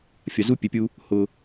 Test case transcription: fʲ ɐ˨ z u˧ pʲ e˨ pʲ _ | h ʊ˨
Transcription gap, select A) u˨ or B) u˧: B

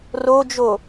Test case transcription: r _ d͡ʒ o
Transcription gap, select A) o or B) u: A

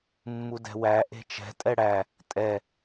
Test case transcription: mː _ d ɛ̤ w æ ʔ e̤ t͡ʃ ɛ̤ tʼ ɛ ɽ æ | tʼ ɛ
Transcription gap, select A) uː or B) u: B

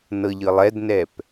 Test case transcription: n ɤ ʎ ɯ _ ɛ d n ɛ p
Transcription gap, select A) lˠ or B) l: A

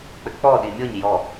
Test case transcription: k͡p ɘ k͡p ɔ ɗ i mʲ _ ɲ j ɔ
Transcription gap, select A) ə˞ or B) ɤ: B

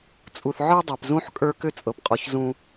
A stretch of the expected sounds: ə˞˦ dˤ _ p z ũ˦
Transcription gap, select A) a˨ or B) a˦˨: A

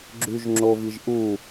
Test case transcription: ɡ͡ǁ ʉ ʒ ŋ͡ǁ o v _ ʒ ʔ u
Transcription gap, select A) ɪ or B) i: B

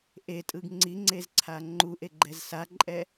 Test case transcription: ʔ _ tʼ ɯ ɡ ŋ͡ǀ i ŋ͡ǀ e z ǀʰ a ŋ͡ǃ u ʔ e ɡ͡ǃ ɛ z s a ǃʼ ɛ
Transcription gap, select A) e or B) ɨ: A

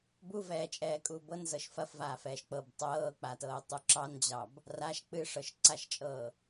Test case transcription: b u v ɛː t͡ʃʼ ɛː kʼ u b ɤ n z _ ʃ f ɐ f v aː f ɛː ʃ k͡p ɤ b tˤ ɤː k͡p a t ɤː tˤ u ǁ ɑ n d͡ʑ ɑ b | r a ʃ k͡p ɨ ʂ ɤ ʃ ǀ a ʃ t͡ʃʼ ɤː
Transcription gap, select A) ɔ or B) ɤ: B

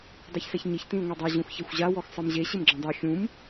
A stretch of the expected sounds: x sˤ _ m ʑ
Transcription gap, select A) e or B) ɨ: B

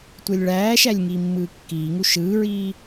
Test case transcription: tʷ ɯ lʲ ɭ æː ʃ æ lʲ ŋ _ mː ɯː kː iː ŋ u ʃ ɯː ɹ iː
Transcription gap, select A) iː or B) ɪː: A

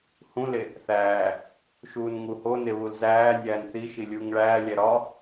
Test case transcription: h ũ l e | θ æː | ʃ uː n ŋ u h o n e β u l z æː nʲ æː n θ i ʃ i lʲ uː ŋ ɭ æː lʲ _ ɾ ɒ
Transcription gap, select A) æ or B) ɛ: A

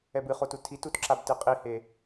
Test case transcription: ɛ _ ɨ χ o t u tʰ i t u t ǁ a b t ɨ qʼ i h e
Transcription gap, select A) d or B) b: B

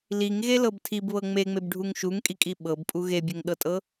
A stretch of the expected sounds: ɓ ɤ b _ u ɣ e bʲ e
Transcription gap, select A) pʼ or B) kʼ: A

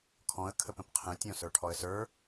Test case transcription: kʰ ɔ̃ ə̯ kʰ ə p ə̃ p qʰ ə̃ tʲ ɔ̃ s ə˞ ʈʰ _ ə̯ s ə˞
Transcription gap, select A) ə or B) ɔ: B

